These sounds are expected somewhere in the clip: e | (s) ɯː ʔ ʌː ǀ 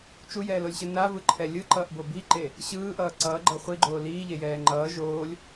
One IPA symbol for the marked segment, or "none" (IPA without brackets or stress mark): ɕ